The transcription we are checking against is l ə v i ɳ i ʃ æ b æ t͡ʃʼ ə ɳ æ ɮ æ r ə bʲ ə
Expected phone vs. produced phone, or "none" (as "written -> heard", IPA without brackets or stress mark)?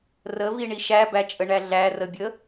l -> r